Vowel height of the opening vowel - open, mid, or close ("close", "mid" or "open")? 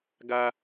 open